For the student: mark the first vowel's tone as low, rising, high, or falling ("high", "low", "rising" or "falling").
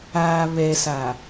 low